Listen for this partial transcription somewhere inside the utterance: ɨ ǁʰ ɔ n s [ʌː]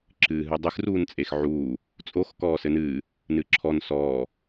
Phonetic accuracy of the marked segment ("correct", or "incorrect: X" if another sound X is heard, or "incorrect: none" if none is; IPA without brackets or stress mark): incorrect: ɔː